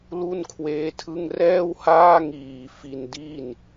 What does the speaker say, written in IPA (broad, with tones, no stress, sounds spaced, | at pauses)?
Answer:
l u˥˩ n kʰ w eː˦˥ tʰ ɯ˥˩ ŋ r ɛː˥˩ w h aː˥˩ ŋ iː˨˩ f i˧ n d i˥˩ n